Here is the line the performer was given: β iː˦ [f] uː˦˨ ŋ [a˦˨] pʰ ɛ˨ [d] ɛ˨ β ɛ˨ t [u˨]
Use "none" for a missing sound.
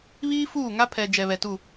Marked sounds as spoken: f, a˦, d͡ʒ, u˦˨

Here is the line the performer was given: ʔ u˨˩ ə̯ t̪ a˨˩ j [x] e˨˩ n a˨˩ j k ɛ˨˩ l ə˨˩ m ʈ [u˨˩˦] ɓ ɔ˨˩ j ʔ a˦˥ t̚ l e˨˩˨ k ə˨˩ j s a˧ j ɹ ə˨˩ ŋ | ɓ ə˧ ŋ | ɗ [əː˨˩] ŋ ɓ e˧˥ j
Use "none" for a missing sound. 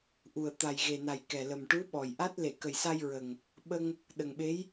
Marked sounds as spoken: ɣ, u˧˥, ə˨˩

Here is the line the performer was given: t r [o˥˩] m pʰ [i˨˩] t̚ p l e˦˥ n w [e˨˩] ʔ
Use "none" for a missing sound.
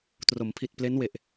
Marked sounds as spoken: o˩˦, i˨˩, e˨˩

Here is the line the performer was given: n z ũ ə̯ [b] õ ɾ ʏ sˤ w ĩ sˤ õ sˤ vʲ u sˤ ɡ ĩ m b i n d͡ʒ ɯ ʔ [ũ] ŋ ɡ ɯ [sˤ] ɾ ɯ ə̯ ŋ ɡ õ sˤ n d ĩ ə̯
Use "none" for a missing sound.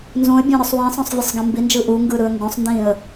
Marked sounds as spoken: bʲ, u, none

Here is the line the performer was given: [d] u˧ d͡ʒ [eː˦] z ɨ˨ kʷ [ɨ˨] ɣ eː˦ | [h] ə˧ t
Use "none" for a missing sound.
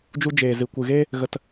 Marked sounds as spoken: d͡ʒ, eː˨, ɨ˨, ɣ

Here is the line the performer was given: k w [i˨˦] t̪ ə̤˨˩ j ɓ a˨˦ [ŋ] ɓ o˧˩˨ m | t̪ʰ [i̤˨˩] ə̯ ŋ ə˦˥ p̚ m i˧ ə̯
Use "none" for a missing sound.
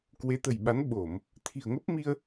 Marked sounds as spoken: e˨˦, n, i̤˨˩

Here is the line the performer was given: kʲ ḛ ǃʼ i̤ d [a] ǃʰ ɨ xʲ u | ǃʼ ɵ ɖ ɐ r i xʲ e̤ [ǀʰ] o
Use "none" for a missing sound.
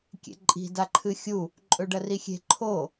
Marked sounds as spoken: a, ǃʰ

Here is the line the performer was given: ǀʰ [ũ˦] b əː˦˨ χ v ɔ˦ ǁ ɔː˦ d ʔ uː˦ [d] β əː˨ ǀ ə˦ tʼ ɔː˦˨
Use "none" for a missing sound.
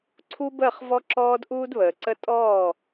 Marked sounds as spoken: u˦, d

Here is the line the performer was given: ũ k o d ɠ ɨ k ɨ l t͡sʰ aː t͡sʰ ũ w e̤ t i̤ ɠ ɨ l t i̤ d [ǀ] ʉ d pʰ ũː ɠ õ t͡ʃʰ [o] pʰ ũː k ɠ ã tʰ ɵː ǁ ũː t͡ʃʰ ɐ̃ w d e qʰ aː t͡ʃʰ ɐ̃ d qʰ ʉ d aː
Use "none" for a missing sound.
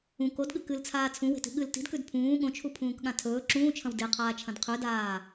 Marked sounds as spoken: k, u

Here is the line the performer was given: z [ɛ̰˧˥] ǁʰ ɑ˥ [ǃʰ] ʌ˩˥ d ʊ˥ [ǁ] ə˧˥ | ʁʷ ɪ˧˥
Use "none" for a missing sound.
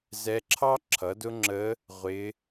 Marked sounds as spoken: ɛ˧˥, ǁʰ, ŋ͡ǁ

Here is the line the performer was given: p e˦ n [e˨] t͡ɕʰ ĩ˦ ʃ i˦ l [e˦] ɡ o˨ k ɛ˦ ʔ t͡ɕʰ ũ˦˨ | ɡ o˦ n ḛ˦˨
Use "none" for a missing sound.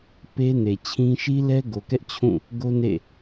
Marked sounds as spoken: e˨, ɛ˦

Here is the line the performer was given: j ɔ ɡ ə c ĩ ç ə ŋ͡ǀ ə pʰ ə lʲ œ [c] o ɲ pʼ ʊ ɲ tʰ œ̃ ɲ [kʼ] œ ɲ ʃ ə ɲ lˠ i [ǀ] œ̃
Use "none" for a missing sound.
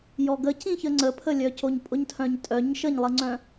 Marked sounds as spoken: c, tʼ, ŋ͡ǀ

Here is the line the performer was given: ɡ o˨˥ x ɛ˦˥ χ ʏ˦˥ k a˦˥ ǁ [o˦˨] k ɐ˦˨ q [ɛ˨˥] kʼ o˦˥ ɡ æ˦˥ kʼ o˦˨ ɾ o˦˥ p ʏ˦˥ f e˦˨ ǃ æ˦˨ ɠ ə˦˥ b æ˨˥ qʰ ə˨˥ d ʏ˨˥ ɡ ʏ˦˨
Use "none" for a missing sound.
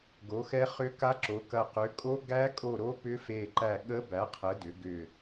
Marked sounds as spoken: o˨˥, ʏ˨˥

